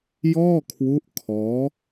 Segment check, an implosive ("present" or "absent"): absent